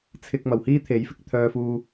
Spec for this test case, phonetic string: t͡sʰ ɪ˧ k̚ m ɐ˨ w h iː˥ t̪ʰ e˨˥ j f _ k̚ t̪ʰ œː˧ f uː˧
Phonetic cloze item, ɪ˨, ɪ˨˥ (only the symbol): ɪ˨˥